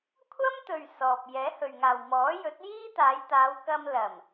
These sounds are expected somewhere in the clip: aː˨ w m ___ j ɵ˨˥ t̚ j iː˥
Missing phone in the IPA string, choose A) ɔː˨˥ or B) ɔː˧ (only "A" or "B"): A